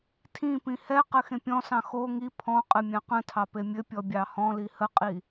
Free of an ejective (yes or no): no